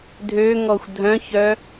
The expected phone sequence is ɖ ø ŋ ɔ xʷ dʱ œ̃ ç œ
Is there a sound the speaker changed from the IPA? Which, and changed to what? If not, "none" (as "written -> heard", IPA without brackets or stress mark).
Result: ɖ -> dʱ